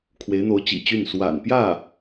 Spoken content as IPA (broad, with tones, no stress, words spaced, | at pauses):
kʰwe˧˥ɪ̯n̪o˧˥ʊ̯t͡ɕḭ˨˩t͡ɕy˥˩n swa̰˨˩npjä˥˩